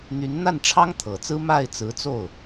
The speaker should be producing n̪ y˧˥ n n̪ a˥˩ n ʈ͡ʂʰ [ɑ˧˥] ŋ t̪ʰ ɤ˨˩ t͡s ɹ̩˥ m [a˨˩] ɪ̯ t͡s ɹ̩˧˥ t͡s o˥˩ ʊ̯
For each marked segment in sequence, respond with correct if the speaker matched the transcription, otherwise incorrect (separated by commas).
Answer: incorrect, incorrect